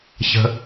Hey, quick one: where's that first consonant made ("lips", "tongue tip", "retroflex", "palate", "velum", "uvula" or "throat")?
palate